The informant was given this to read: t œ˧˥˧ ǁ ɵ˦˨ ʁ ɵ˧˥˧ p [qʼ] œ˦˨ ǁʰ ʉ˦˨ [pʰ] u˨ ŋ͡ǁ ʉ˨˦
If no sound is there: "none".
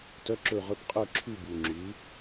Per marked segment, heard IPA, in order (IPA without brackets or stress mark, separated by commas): qʼ, b